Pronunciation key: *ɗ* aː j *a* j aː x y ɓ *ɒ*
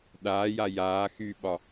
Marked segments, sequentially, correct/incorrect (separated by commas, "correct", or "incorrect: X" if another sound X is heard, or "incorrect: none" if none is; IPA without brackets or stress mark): correct, correct, correct